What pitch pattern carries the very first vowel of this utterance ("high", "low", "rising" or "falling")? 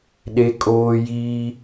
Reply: high